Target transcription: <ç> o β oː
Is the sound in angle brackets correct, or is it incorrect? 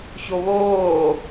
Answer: correct